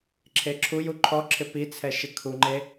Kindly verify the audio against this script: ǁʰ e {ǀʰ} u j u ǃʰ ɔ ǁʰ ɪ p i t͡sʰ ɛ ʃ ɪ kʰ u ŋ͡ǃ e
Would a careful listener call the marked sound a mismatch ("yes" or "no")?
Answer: yes